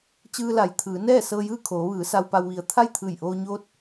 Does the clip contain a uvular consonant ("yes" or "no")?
no